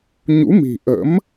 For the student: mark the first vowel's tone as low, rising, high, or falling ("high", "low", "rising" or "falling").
rising